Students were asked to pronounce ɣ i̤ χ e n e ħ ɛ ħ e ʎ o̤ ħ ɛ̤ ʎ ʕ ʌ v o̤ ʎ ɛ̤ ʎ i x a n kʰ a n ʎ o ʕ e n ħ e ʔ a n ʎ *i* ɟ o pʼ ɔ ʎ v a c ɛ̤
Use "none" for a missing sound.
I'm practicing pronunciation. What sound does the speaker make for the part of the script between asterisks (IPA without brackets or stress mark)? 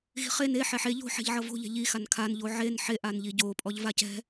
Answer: i